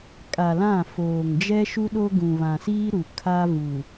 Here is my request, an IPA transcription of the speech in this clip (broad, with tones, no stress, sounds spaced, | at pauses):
kʼ a˨ l ã˦˨ f oː˨ ŋ d͡ʒ ɛ˦ ʃ u˦ ɗ o˦ ɡ ũ˨ β ã˨ s iː˦ ɾ u˨ kʰ a˦ v u˨